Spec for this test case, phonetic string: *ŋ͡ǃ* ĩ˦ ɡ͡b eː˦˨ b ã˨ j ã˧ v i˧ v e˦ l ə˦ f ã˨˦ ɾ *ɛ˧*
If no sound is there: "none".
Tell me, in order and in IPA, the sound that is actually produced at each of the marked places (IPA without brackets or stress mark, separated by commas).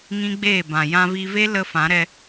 ŋ, ɛ˧